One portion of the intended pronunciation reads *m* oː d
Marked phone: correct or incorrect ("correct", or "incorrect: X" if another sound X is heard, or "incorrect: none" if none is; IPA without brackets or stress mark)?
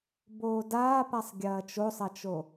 incorrect: b